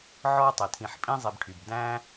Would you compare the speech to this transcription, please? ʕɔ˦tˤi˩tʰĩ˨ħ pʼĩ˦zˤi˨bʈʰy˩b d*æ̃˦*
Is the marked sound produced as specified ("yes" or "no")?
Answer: yes